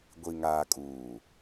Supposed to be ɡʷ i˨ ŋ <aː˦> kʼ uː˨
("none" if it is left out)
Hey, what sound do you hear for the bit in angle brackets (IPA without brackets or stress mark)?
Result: aː˨